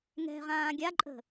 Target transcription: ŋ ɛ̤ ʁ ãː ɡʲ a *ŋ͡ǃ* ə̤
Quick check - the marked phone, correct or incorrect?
incorrect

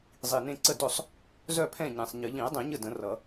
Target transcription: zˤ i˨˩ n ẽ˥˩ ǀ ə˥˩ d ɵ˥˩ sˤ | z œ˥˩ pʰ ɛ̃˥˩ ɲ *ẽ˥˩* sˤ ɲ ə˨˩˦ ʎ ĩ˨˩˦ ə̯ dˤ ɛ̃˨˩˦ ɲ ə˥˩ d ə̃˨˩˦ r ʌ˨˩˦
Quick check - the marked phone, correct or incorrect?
incorrect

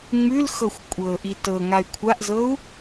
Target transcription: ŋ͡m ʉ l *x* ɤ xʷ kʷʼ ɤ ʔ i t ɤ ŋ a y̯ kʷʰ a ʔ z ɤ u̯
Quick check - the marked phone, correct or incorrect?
correct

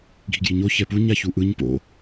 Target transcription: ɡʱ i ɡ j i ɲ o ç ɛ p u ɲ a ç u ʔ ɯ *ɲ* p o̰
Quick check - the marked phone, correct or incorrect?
correct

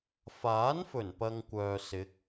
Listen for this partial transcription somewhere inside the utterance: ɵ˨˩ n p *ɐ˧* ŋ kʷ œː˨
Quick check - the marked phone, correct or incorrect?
incorrect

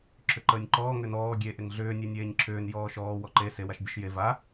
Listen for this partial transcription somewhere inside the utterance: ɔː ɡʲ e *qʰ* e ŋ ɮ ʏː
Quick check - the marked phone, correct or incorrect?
incorrect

